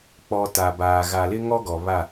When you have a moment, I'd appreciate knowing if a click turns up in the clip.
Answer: no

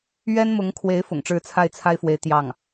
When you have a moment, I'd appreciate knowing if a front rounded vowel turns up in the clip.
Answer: no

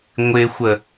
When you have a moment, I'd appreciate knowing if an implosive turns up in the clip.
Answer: no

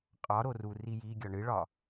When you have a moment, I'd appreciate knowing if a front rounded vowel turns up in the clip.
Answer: no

